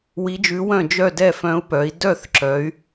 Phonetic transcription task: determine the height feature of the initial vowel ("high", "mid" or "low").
high